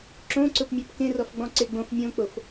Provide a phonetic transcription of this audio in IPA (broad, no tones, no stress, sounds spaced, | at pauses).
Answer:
ǁ õ ǀ ʊ p mʲ o p k ẽ r ɔ f ɡ͡b ɔ̃ ǀ e ɡ͡b õ f mʲ õ k͡p o f